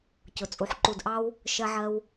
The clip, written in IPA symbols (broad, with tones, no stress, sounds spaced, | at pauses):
c ʊ˨ t͡sʼ u˨ ħ ǃ u˨ d ʔ ɑ˧ w | ʃ ɜ˧ ʕ ɜ˧ w